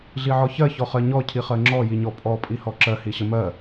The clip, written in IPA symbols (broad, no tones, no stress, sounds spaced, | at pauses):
ɮ i ʕ ɔ ç ɜ ç ɔ χ ɜ ɲ ɔ cʰ i χ ɜ ŋ͡ǁ ɔ j i ɲ ɔ pʼ ɔ pʼ i h ɔ ǁ ɜ h i ɕ ə m ɜ